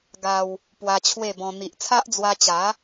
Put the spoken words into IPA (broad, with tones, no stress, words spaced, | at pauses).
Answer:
ɡa˧w | pwa˧t͡ɕʰwe˥˧bɔ̃˧ n̪i˨ʔt͡sʰa˦ʔd͡zwa˧t͡ɕa˨˦